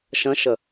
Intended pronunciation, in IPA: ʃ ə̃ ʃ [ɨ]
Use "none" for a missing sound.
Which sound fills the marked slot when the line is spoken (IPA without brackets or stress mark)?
ə